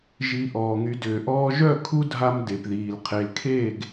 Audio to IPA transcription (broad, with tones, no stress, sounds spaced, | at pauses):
ʒ i˧ ʔ ɔː˨ ŋ y˨˦ d ʏː˨ ʔ ɔː˦ ʒ œ˦˨ kʰ u˦ dʱ a˧ m d e˨ p ð iː˨ l qʰ e˨ l kʰ eː˦˨ ɡ